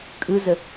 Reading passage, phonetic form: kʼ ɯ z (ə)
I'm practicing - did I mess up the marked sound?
no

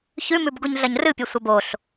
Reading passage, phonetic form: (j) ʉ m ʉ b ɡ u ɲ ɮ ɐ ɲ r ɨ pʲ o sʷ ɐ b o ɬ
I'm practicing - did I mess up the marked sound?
yes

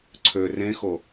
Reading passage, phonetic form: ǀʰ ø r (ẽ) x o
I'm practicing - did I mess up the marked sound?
no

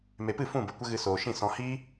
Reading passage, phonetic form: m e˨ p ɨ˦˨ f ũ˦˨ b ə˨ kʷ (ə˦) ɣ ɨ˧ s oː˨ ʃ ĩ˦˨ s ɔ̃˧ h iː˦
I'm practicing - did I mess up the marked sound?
no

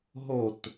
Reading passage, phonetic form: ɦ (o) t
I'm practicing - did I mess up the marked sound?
no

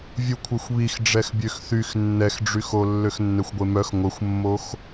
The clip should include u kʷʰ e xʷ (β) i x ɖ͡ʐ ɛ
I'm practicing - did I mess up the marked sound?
no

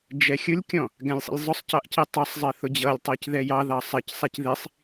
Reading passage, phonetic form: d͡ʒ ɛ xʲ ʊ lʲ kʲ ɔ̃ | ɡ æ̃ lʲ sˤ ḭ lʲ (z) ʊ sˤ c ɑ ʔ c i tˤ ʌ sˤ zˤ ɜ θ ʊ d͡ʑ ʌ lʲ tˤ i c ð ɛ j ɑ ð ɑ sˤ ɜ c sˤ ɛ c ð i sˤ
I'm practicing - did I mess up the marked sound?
yes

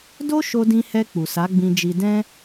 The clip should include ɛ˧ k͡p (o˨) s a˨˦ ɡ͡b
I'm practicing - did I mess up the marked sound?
yes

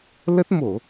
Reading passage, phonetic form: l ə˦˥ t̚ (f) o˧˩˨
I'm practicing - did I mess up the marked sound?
yes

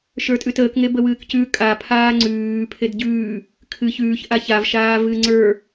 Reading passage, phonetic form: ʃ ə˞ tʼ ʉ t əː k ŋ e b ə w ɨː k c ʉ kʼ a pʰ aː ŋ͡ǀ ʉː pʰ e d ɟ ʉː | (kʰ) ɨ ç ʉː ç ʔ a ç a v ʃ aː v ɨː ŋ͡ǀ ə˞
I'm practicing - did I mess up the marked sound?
no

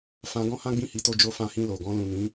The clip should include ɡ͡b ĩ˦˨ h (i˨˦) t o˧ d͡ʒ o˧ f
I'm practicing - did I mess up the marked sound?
no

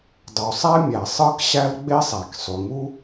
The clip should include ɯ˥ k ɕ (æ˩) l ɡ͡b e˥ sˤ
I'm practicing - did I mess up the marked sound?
yes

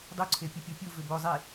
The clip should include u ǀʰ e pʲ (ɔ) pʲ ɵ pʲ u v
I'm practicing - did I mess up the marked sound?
yes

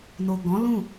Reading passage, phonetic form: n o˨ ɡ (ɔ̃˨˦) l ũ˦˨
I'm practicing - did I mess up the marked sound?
no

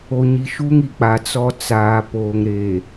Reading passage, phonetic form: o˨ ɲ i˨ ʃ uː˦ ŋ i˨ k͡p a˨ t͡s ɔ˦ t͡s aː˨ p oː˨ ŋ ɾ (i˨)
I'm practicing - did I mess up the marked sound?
yes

